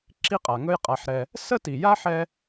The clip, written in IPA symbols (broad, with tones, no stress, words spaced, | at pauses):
ǁi˥qʼa˩ŋɵ˥j qʼa˩ħɾɛ˩ | sə˥ti˩ja˥ ħɛ˥